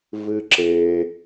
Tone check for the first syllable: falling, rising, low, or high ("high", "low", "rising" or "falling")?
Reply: high